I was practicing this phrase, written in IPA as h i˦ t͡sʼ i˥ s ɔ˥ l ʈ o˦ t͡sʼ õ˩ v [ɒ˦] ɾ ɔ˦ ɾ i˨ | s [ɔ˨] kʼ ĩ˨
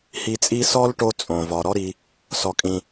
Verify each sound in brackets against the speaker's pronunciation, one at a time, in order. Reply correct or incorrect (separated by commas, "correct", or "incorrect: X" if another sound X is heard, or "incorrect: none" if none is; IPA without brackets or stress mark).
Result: incorrect: ɒ˩, correct